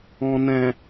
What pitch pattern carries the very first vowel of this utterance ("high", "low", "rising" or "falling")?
low